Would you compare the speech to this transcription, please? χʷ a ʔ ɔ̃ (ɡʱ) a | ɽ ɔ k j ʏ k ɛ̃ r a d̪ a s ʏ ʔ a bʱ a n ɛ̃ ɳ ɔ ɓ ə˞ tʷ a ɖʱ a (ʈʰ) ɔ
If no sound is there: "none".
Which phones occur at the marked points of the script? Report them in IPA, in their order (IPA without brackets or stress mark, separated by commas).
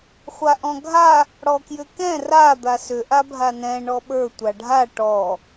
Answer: ɡʱ, ʈ